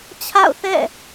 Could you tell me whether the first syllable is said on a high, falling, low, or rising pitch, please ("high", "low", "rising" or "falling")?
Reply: falling